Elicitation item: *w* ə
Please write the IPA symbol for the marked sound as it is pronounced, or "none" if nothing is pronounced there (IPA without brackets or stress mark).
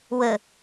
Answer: w